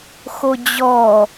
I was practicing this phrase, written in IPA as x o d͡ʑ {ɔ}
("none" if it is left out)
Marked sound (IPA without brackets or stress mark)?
ɔ